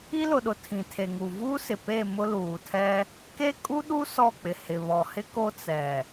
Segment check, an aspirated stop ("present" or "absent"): present